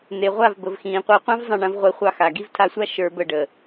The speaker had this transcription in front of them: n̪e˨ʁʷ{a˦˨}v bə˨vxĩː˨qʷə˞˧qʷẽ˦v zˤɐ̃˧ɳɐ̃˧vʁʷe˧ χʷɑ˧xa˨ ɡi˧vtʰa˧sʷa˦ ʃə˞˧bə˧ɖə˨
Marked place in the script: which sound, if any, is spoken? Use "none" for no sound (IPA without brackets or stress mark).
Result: a˦˨